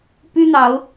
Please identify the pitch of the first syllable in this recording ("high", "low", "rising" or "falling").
high